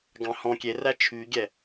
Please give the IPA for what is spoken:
ɡ ɑ̃ h ɔ̃ kʲ e r æ t͡ʃʰ y ɡʲ ɛ

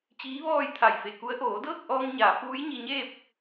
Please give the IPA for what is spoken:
t͡ɕ iː˧˥ ʋ ɔː˥˨ j t̪ʰ a˧˩ j f e˧˩ k u˧˥ ə̯ ʔ oː˩˧ d ɤː˥˨ k̚ ʔ ɔː˧ ŋ ɲ aː˩˧ f uː˧˥ j ɲ i˧ ɲ eː˥˨ p̚

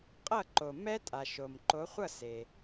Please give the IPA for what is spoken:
qʼ ʌ˥˨ ǃ o˩ m ɛ˦˥ tʼ a˩ ʃ o˩ m ǃ o˨˦ χʷ ʌ˥˨ s e˩

